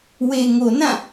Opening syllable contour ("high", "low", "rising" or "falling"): low